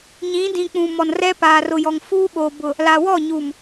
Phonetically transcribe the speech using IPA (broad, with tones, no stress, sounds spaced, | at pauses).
ɲ ĩ˨˦ d ĩ˨ k͡p ũ˨ m ɔ˨ n r ɛ˦ p aː˨ r ʊ˨ j ɔ˨ ŋ f uː˦ ɓ oː˨ b ʊ˨ | l a˨ w ɔ˦˨ ɲ u˨ m